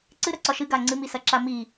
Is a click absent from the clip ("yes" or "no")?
no